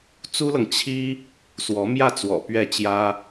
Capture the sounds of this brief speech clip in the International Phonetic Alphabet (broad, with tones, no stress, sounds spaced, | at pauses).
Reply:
t͡s u˥ l ɤ˨ ŋ t͡ɕʰ i˥ | s w ɔ˧˥ m j ä˥˩ t͡s w ɔ̰˨˩ p ɥ ɛ˥˩ t͡ɕ j ä˥